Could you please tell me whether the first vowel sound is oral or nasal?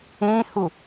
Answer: nasal